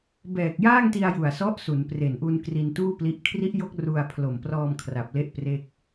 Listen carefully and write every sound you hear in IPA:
b ɛː˨˩ k̚ j aː˥˩ ŋ t i˧ a̯ j u˨˩ a̯ s ɔ˦˥ ʔ s u˩˦ n p r e˨˩ n ʔ u˧ n k r i˧ n t uː˥˩ p l i˦˥ ʔ kʰ r i˦˥ ʔ j o˦˥ k̚ r u˧ a̯ pʰ l o˨˩ m p r ɔː˧ m kʰ r a˨˩ p̚ l e˦˥ ʔ p r e˥˩ k̚

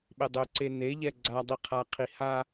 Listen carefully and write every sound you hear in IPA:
ɓ e dˤ ø ǀ e n e ʎ ɛ ɡ͡ǀ a dˤ i qʰ a qʰ i h a

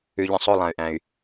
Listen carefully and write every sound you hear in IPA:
ʉ˨ ʎ ə̃˨ sˤ o˦˨ lˠ ã˨ y̯ ʔ æ̃˨ y̯

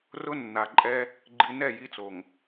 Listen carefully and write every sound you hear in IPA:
r ʊ˦ nː a˨ ǃʼ ɛ˦ | ɡ͡ǃ i˨ n ɛ˦˨ j i˦ t͡s o˨ ŋ

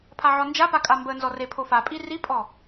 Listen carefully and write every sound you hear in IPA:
pʰ a ʕ ɔ n d͡ʒ a p a kʼ a m b ə n z ɔ r e pʰ o f a pʼ i r i pʼ ɔ

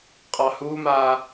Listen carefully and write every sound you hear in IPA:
qʼ ɑ h uː m aː

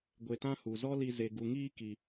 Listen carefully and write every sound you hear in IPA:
ɡʷ e˨ t ã˧ h u˨ z ɔ˦ l i˧ z e˨ ɡ u˨ ŋ iː˧ k i˧

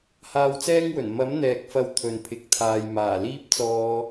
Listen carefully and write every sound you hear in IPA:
h aː˧ w t͡s ɛː˥ ŋ w ɵ˨˩ n m ɐ˨˥ m n̪ ɛː˨ k̚ f ɐ˨˧ w t̪ʰ ɵ˨ n pʰ ɪ˨ k̚ t̪ʰ aː˨ j m aː˨˩ l iː˥ p̚ t͡s ɔː˧

